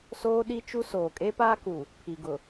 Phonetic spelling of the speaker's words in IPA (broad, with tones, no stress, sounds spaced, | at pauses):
s oː˦ ɗ i˦ t͡ʃ u˦ s oː˨ kʼ e˦ p aː˦ k u˨ | pʰ i˨ ɡ ʊ˨